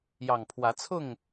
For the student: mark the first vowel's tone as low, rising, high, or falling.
low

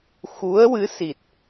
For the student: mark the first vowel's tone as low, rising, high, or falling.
rising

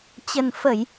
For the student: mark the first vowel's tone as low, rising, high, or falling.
low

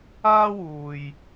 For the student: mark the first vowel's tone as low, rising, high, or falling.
high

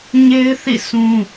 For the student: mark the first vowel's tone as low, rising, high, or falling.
high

